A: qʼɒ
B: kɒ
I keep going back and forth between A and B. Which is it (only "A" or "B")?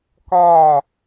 B